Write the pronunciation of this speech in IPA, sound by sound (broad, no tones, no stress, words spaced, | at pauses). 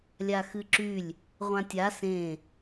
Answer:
lʲaxɨǁylʲ | ʁʷãtʲa sẽ